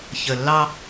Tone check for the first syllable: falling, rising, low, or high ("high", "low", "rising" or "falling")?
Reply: low